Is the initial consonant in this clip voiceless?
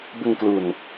no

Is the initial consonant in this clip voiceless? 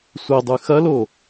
yes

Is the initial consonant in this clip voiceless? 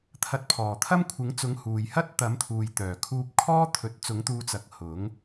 yes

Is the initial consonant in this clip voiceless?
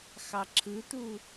yes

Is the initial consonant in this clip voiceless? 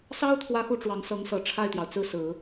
yes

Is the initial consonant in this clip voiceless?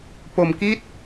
yes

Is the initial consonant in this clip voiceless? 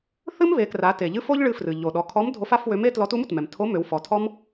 yes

